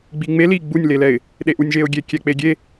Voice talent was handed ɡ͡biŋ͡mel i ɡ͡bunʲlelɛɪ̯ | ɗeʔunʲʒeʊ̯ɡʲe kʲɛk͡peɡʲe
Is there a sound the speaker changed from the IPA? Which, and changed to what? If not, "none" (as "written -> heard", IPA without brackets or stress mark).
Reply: none